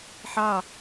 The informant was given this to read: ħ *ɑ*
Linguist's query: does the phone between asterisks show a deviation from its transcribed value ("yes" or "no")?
no